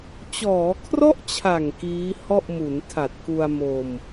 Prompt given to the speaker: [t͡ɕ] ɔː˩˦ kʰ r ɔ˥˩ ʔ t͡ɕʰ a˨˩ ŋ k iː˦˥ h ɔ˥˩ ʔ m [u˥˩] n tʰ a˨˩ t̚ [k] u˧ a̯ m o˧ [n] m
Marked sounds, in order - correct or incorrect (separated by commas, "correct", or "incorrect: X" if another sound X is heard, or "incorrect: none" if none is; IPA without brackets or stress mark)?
correct, incorrect: u˩˦, correct, incorrect: none